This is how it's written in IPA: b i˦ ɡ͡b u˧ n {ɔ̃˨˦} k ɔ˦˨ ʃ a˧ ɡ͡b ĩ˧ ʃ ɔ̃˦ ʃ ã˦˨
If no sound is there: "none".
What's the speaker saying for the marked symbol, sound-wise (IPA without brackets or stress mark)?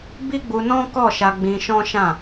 ɔ̃˦